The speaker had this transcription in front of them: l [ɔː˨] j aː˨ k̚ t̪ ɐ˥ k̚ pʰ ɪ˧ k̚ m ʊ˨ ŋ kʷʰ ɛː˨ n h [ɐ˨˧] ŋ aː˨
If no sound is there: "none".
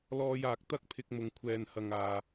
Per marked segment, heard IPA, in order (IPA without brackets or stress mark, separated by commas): ɔː˧, ɐ˨